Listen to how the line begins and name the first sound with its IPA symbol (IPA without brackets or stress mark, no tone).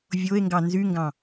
vʲ